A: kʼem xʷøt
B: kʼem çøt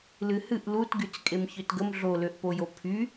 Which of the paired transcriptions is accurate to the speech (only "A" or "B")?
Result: B